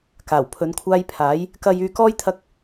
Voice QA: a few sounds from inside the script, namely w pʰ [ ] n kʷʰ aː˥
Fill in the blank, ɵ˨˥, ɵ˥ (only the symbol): ɵ˨˥